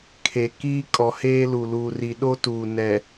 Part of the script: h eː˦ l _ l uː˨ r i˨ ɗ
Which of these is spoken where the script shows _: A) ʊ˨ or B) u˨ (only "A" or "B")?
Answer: B